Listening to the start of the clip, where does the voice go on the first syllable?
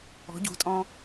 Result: rising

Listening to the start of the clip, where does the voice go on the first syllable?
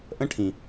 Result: high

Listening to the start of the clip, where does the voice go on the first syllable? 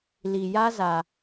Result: low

